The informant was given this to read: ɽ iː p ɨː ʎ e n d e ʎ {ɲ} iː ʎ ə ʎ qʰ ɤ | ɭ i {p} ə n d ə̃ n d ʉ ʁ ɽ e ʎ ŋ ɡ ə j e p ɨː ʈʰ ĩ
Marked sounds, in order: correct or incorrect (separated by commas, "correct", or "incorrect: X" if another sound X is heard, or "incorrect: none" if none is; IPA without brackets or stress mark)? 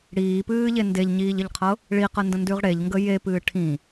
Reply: correct, incorrect: q